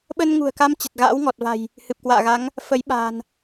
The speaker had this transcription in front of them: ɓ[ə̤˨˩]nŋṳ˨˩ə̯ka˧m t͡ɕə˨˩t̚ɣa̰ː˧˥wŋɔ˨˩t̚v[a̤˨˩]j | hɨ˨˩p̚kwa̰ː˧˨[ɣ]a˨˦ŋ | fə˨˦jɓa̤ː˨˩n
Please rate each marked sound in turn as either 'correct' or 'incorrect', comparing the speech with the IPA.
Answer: incorrect, correct, correct

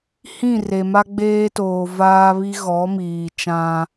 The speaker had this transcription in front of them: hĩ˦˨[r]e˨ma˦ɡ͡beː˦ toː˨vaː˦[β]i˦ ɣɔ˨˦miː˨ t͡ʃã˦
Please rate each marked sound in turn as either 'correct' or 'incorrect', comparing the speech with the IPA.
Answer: correct, correct

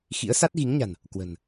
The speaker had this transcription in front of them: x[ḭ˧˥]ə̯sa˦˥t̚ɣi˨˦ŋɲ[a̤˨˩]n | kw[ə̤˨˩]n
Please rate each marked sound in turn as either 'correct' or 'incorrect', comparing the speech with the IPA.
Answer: correct, correct, correct

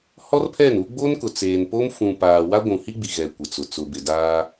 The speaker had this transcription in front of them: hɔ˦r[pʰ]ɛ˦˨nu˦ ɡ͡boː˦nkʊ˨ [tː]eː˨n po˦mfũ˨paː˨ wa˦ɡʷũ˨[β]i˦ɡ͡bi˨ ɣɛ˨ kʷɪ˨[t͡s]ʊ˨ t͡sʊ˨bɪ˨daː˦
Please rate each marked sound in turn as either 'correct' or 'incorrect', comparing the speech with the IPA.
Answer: correct, incorrect, incorrect, correct

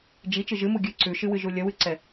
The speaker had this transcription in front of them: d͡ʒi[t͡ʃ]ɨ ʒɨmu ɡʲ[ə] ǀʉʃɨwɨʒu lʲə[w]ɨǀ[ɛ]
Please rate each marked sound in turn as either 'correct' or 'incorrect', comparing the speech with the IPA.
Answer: correct, incorrect, correct, correct

